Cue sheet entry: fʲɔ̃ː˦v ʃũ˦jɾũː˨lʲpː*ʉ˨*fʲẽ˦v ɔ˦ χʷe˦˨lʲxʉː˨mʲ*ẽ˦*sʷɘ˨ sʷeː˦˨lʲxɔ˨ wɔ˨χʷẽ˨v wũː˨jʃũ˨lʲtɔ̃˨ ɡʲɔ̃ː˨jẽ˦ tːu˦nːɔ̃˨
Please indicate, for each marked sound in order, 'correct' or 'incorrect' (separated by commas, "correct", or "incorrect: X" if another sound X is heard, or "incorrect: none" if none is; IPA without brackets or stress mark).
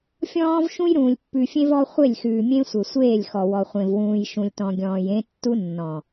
correct, correct